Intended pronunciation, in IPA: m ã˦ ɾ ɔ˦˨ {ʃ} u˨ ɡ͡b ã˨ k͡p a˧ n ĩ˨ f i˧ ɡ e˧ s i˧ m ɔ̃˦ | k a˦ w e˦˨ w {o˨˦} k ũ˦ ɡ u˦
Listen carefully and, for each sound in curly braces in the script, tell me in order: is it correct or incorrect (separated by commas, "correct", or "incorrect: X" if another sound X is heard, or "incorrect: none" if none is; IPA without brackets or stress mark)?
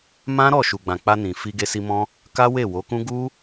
correct, correct